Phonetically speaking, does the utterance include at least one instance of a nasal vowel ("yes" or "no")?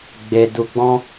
yes